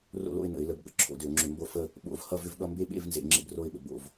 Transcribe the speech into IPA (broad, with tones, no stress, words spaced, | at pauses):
ro̰˥˧lo̰˥˧ɪ̯nə̰˧˩˧ɪ̯ lə˧˩˧bɠə̰˥˧ ǁʰo̰˧˩˧dʏ˧˩˧ʊ̯ŋ͡ǁʏ˧˩˧ mbo˥˧fə˥˧ | ɓo̰˧˩˧v hʌ˥˧vʏ˥˧vɠʌ˥˧ mbe˥˧ɓḛ˥˧v nzḛ˧˩˧ŋ͡ǁḛ˥˧bro˥˧ɪ̯ɓə̰˧˩˧ bo̰˧˩˧v